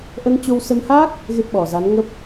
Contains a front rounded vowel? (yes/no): no